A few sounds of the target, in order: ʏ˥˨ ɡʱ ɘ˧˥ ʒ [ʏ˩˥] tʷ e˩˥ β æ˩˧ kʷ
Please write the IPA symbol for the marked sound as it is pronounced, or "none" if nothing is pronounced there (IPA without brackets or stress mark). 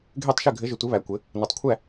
ʏ˩˥